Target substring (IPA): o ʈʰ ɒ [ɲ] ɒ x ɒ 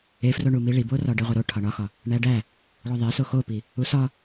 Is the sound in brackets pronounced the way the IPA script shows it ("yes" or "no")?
no